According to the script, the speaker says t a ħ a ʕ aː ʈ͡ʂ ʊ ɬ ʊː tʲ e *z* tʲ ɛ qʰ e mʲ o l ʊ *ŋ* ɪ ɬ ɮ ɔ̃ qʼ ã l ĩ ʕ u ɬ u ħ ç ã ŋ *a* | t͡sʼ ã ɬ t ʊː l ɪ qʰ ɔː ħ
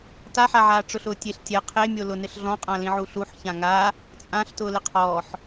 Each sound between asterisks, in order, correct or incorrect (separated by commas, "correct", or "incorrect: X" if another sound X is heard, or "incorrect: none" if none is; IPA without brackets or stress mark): incorrect: ɬ, incorrect: n, correct